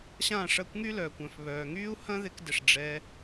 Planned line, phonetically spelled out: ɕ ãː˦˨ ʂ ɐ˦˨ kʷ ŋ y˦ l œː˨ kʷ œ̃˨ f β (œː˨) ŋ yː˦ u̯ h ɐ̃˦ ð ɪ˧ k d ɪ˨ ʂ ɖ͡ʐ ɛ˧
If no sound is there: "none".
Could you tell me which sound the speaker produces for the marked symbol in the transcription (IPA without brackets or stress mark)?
œː˨